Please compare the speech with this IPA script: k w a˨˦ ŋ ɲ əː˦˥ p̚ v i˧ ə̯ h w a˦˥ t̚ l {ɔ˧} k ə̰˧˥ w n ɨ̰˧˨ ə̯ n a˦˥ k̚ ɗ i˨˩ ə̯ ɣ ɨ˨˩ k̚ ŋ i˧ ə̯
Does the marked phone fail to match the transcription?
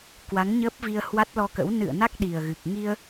no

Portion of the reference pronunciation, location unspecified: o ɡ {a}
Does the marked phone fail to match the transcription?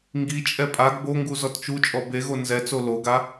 no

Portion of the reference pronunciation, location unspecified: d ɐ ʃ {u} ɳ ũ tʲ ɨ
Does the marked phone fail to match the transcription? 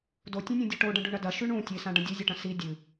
yes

